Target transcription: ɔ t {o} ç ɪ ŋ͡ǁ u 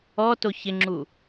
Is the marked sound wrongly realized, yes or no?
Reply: no